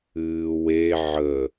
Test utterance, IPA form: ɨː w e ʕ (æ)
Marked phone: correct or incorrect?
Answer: incorrect